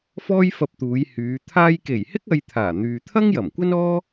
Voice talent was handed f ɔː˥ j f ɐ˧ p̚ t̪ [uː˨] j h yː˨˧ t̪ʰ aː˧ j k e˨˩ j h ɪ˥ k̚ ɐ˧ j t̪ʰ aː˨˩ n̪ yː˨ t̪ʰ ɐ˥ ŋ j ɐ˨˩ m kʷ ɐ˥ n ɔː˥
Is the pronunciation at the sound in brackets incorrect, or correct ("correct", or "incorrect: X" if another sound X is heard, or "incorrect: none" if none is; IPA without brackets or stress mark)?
incorrect: uː˨˧